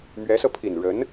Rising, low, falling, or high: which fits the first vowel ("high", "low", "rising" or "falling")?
rising